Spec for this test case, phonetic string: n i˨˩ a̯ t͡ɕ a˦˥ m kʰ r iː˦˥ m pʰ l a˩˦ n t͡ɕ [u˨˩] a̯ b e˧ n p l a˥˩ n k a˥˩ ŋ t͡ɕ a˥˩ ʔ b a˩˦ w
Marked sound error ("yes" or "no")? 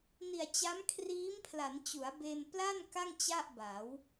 yes